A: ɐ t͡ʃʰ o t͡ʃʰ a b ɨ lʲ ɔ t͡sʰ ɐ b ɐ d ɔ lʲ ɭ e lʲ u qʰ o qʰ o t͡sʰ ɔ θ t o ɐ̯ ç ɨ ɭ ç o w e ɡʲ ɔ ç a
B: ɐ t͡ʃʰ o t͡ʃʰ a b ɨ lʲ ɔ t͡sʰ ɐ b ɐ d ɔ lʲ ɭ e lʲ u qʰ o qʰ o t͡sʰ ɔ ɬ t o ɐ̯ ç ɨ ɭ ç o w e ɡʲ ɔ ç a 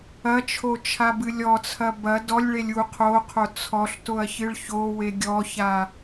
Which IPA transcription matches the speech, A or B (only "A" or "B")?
B